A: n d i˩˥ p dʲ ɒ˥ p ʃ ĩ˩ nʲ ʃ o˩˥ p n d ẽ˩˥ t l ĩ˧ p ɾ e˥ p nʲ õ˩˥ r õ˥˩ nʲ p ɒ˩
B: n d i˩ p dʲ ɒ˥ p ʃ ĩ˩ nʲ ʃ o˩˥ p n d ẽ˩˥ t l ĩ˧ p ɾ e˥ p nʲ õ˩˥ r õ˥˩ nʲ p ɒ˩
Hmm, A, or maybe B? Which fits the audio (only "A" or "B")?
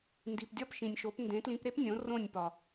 B